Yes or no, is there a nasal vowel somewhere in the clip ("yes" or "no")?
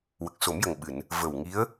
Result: no